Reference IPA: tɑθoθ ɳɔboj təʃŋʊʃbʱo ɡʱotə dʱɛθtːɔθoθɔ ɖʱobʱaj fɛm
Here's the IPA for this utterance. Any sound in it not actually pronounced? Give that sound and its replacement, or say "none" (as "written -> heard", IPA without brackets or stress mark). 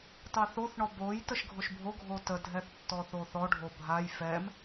ŋ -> ɡʱ